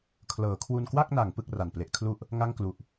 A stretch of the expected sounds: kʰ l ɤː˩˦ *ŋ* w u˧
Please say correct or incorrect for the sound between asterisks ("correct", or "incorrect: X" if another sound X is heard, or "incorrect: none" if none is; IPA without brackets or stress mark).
incorrect: kʰ